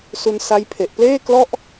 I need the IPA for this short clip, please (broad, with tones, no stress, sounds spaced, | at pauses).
s u˧ n s a˦˥ j pʰ e˨˩ ʔ p l eː˥˩ k l ɔ˥˩ ʔ